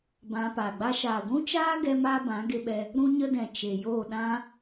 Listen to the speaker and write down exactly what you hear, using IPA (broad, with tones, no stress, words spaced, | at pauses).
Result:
bã˧ paː˨ɡ͡ba˦ ʃaː˨ɡʷũ˦t͡ʃaː˦ɡɛ˧ maː˦bã˨˦ɡe˧ɓɛ˧ | ɾũ˦ɲə˦dɛ̃˨ t͡ʃe˨joː˦˨ɗã˦